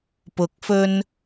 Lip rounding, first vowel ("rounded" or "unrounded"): rounded